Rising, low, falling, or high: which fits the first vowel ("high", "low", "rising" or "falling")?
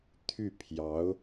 falling